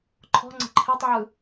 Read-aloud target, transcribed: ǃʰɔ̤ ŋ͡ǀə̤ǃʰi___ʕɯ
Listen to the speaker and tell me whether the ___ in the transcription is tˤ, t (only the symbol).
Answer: tˤ